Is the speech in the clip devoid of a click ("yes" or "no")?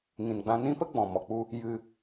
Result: yes